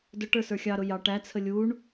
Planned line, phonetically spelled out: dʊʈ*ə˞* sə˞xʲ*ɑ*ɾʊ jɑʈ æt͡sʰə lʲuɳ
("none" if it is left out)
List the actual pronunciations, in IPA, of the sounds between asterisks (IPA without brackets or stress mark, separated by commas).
ə˞, ɑ